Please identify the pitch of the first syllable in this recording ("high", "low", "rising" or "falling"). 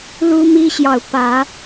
high